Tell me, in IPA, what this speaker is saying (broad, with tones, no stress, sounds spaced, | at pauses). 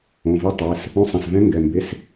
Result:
õ˩˧˩ v e˧˥ tˤ ɛ˩˧˩ s | õ˧˥˧ sˤ ɛ̃˩˧˩ s v ɛ̃˧˥ ŋ ɡ ɛ˩˧˩ m b e˧˥˧ s